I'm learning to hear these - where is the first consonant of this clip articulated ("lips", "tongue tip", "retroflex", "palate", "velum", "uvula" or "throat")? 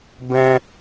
lips